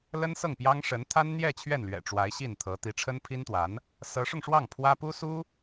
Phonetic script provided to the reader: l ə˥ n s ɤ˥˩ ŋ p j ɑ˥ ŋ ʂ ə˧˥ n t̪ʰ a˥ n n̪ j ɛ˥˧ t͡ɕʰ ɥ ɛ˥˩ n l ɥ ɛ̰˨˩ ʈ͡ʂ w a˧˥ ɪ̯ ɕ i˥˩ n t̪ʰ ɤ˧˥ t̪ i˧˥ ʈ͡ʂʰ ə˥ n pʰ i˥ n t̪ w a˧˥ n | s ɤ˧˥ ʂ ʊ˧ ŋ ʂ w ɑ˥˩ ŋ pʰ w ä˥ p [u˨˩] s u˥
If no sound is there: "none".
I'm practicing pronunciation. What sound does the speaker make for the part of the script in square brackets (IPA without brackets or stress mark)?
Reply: u˥